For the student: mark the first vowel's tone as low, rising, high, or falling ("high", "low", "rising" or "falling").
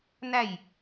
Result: falling